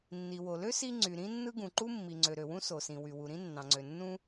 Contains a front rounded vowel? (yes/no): yes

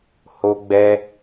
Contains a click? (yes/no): no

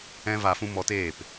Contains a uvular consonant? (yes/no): no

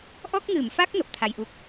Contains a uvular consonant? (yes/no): no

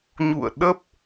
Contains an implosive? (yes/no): yes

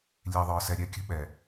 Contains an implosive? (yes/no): yes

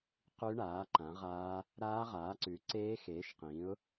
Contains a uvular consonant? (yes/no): yes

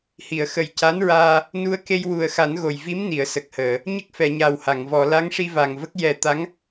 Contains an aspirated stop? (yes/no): no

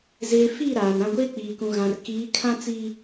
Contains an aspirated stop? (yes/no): yes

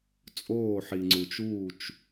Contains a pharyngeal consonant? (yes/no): yes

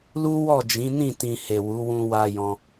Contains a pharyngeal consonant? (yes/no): no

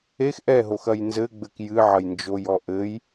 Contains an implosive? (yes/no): no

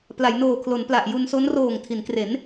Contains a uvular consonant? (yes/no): no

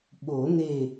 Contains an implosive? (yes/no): yes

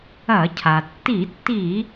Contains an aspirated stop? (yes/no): yes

